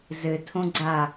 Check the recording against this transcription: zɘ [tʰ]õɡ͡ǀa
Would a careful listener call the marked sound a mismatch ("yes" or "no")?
no